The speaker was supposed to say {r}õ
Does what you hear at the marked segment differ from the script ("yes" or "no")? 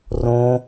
no